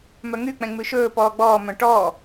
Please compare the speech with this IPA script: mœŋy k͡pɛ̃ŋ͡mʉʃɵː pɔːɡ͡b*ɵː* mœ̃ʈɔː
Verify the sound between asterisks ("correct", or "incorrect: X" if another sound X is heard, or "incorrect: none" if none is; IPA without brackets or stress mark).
incorrect: ɔː